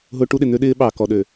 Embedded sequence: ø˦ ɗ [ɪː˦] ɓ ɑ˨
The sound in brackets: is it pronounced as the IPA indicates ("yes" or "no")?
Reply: yes